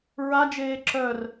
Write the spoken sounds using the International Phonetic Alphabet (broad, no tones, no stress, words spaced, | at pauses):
ɹad͡ʒeː ǁœr